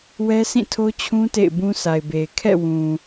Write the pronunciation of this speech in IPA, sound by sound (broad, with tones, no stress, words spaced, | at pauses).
wɛ˦sʰĩ˦˨tʰo˦t͡ɕʰũ˦ tḛ˦˨ɪ̯bũ˦sʰa˨ɪ̯be˨ɪ̯ kʰɛ̰˦˨wũ˨